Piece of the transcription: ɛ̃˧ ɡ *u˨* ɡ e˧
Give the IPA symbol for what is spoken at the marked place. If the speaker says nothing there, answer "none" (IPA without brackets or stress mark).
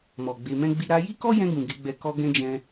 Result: ũ˨